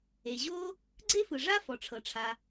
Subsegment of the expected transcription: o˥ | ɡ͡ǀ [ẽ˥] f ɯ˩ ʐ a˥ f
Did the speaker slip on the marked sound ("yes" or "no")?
yes